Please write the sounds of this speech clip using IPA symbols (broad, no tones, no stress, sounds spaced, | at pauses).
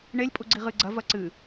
ɳ e lʲ pʼ u ɡ͡ǀ i ʁ ɨ ɡ͡ǀ ɐ v ɐ ǀ ɨ